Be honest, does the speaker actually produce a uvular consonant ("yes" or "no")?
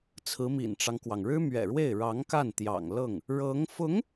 no